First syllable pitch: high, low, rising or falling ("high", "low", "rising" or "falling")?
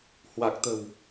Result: low